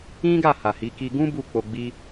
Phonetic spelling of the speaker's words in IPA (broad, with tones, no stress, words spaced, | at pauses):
ĩ˦ɡa˦˨ ha˨hi˨˦ ki˧ɡũ˦ bu˦˨k͡po˧ɡ͡bi˦